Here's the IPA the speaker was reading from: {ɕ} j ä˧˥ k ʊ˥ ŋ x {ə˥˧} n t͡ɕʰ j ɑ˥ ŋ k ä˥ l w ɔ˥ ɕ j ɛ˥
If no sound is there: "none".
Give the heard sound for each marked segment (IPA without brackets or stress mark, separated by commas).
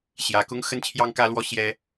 ɕ, ə˥